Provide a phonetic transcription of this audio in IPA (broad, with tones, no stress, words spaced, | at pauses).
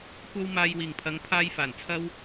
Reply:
kʷɐ˥w maː˧jwiː˨˩ŋpʰɐ˨˧ŋ pʰaː˥j faː˨˩nt͡sʰɐ˥w